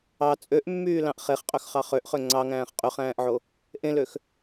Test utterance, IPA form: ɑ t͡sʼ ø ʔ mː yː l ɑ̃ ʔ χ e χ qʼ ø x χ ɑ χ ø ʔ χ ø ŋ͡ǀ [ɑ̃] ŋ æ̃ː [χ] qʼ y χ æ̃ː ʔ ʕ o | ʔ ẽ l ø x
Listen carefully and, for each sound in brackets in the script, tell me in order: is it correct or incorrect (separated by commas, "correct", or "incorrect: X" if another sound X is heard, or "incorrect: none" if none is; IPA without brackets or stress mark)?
incorrect: ɑ, correct